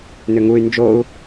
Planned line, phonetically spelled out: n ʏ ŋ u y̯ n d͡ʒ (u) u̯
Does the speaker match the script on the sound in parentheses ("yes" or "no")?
no